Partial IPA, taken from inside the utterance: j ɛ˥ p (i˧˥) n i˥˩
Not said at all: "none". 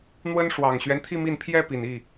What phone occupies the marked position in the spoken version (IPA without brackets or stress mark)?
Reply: i˨˩